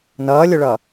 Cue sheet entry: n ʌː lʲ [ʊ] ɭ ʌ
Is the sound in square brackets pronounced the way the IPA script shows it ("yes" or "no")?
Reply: yes